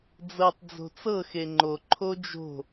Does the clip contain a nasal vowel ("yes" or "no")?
no